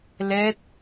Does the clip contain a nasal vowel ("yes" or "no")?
no